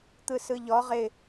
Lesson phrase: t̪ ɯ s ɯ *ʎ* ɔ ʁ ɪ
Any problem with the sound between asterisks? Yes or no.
no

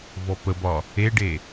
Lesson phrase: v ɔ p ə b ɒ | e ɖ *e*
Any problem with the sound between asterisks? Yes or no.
no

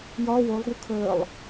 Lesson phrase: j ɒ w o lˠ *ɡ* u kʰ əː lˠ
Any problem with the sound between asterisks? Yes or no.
no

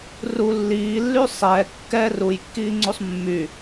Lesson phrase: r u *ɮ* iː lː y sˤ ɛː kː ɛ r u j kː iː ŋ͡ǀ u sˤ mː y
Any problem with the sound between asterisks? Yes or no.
yes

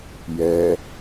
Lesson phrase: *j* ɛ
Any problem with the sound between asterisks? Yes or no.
no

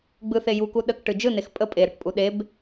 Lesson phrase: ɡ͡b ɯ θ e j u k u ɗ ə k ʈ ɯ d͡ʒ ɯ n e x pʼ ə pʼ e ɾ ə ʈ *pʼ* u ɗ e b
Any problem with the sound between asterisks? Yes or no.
no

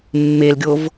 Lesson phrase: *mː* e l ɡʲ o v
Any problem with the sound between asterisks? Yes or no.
no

